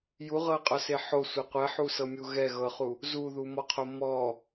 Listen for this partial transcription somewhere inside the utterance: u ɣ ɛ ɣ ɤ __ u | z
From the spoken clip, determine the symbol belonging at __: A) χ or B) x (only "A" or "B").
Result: A